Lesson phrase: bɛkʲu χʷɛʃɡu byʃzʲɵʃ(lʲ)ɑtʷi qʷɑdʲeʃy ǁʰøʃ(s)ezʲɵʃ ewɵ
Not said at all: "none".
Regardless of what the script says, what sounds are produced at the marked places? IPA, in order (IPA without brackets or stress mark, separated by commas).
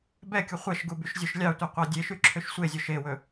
lʲ, sʷ